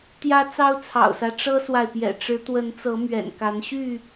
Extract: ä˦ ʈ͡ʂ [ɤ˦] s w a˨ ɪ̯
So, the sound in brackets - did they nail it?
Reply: yes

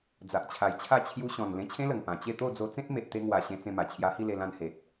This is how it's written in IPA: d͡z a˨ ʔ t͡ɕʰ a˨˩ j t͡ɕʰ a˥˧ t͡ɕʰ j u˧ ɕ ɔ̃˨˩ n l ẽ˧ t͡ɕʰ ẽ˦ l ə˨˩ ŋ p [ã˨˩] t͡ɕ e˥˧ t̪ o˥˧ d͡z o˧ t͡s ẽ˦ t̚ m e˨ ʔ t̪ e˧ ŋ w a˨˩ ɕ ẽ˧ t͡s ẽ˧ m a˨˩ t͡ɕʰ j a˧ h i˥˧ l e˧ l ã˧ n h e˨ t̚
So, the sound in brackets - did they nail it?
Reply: yes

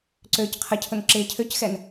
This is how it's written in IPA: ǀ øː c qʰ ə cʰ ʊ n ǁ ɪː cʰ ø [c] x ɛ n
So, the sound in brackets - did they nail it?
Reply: yes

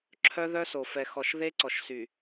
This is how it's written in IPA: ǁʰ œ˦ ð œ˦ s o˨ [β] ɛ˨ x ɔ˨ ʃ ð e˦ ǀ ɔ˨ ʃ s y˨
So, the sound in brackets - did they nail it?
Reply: no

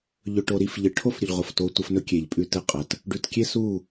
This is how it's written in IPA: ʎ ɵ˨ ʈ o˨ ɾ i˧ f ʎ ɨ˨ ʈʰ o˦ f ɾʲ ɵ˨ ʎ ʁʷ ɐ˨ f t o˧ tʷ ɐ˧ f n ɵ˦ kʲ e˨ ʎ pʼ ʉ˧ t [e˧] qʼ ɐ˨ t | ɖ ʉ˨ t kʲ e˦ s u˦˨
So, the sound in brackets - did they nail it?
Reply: no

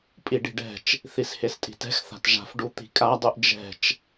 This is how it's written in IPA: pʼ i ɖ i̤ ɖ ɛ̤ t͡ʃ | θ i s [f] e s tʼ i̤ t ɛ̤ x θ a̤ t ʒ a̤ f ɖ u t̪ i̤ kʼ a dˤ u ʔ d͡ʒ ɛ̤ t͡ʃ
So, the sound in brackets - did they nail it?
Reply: no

